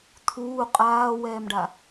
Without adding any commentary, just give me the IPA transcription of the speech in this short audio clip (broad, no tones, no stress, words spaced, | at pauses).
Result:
t̪ʰuː qʼaːwɛːmɖa